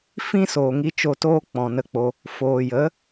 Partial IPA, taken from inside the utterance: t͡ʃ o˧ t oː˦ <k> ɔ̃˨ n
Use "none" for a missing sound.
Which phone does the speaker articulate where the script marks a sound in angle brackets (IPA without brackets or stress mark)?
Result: k͡p